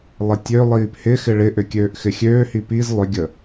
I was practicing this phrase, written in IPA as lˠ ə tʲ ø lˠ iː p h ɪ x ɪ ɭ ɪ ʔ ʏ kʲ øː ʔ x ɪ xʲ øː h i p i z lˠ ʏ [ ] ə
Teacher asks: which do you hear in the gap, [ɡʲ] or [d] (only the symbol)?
ɡʲ